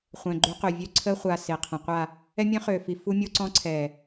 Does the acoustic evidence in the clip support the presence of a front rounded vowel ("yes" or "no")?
yes